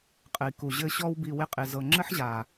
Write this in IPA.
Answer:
qʼ ɘ˨ i̯ k u˨ ʑ ɘ˧ ɕ ɔ˧ w b i˨ w ɪ˧ qʼ ɪ˨ z ɤ˨ ŋ͡ǁ ɘ˦ ħ ʑ a˨

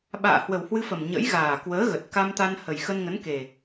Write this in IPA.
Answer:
ɓ a̰ː˧˨ h w ə˨˩ w h w ɨ˧ f ə˨˩ m ɲ ə̰˧˥ j ɣ aː˨˩ k w əː˨˦ ɣ ə˨˩ t̚ k a˧ m t̪ a˧ n h ə˨˩ j x ə˧ n ŋ ə˨˦ n k e˨˩

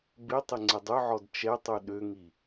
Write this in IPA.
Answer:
b ɪ tˤ ɪ ŋ͡ǀ ɪ dˤ ʏ ʕ ɔ d t͡ʃ ɛ tˤ u ɗ ø ŋ i

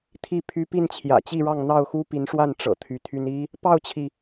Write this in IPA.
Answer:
t̪ʰ i˥˨ pʰ y˦ p i˥˨ n t͡ɕʰ j ä̰˨˩ t͡ɕ i˥˨ ɻ ɑ˥˨ ŋ n̪ ɑ˥˨ ʊ̯ x u˦ p i˨˦ n ʂ w a˥˨ n ʈ͡ʂ ɤ̰˨˩ t̪ʰ y˨˦ t̪ʰ y˦ n i˦ | p ɑ˥˨ ʊ̯ t͡ɕʰ i˩

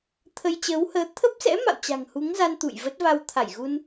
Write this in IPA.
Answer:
t̪ʰ ə˧ j t͡ɕ əː˨˦ w h əː˨˦ t̪ʰ ə˦˥ p̚ s ɛ̰˧˥ m a̰˧˨ w t͡ɕ a̤˨˩ ŋ h u˨˦ ŋ z a˧ n t̪ ṵ˧˨ j v ə˦˥ t̚ v a˧ w t̪ʰ a˧˩ j ɣ u˧ n

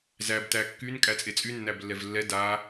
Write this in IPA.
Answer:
z æ b t æ kː y n kʼ æ t͡sʼ e t͡sʼ y nː æ b lː ɛ v lː ɛ d a

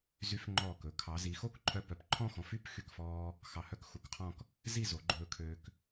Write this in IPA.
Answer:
z y˧ f ŋ͡ǃ ɔː˧˩ k ɵ˩˧ kʰ ɑ˩˧ z i˩˧ x o˥ k ǃʰ œ˧ p œ˩˧ p ǃʰ ɔ̃˥˧ x ɔ̃˩˧ f y˥˧ p x y˧˩ k f ɔː˧ | x ɑ˧˩ h œ˥ k x u˩˧ k qʰ ɔ̃˥˧ k | z i˥˧ z o˩˧ ɡ͡ǃ ɵː˧ kʰ øː˧ k

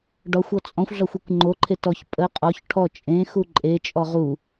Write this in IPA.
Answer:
ɖ ɒ xʷ ɔ t͡sʼ ɔ̃ xʷ ɮ ɒ xʷ e kʷ ŋ͡ǃ o ǃʰ e t ɔ ç pʼ ə qʼ ɔ ç ʈʰ ɔ t͡ʃʼ ẽ x u ǃʼ e t͡ʃʼ ɔ ʁ u

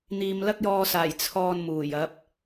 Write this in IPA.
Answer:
n̪ iː˨ m l ɐ˥ k̚ j ɔː˧ s aː˨˩ j t͡sʰ ɔː˧ n m uː˨˩ j ɐ˨˥ p̚

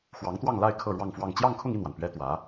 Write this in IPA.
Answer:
x w ɑ˧˥ ŋ t̪ w ɑ˥˧ ŋ l a˥˧ ɪ̯ kʰ ɤ˥˧ ɻ w ɑ˥˧ ŋ f w ɑ˥˧ ŋ t͡ɕ j ɑ˥˧ ŋ kʰ ʊ˥˧ ŋ i˥˩ n w a˩ n p ɥ ɛ˥ t̪ w ä˧˥

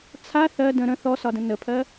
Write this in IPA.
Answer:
t͡sʰ a θ ɜ d ə̃ ɾ ə̃ θ ɔ s ɒ d ə̃ n ə pʰ ɜ

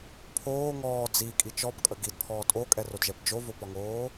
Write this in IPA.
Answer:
pʰ oː ŋ ɔː d͡z i kʼ i t͡ʃ ɔ p kʼ ə ɡ i d pʰ ɔː tʼ o kʼ ɛ r o d ʒ ɛ p d͡ʒ o v o p ɒ ŋ oː

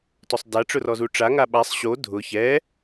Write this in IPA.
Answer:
t ɔ sˤ d a ʈ͡ʂ ʊ r ɔ z u ʈ͡ʂ a ŋ a ɓ a sˤ ɕ o dʱ ʊ ç ɛ

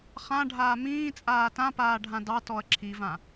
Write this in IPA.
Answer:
χ ã ɖʱ aː m ĩː t͡sʼ aː t ã p aː ɖʱ ã d ɑ t ɔ ɐ̯ ǁʰ i v ã

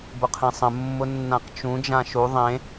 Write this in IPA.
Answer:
b ʊ qʰ ẽ sˤ ə̃ mː ʊ nː ã q t͡ʃ ũ d͡ʒ ã ʃ u ðˤ ẽ

